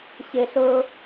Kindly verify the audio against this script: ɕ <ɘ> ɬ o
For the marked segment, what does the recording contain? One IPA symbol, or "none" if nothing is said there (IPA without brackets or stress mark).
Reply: ɘ